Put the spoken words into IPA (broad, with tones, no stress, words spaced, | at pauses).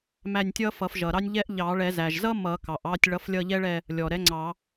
mæ˦˨nʲtʲʌ˥fʌ˨˩˦f ʒʌ˩ɾɑ˥nʲʎɛ˥ʔ ʎɑ˨˩˦ɭɛ˨˩˦zæ˩ʒ zʌ˥ mʌ˨˩˦kɑ˩ʔɑ˦˨tʲ ɭʌ˨˥flʲʌ˦˨ʎɛ˥ɭɛ˦˨ | lʲɔ˩ɾɛ˨˥ ŋ͡ǀɑ˨˩˦